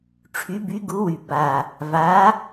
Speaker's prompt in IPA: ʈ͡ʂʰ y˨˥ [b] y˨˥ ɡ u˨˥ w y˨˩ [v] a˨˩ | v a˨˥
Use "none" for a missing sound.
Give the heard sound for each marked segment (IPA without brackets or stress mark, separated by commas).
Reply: b, b